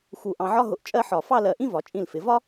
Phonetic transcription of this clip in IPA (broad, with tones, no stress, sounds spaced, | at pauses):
x u˧˩ ʔ ɑ̃˧ ʕ ɒ˥ ɦ ʊ˧ ʔ t͡ʃʼ ɜ˥ ħ ɒ˧˩ f ɑ˥˧ l ɜ˧˩ ʔ ĩ˥ v ɒ˩˧ t͡ʃʼ ĩ˧˩ l f ɪ˩˧ v ɒ˥